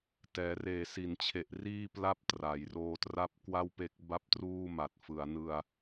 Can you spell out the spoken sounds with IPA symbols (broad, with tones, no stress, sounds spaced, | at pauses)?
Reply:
t ɛː˩˦ r eː˨˩ s i˩˦ n t͡ɕʰ e˨˩ ʔ r iː˥˩ p l a˥˩ p̚ t r a˩˦ j r oː˧ t r a˥˩ p̚ k w a˥˩ w p e˦˥ k̚ b a˥˩ p̚ t r uː˥˩ m a˨˩ t̚ f ɯ˩˦ a̯ n ɯ˧ a̯